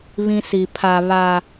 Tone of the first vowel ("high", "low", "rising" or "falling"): high